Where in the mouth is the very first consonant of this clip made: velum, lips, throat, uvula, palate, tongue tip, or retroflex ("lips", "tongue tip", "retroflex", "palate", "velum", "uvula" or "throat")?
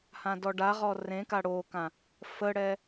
throat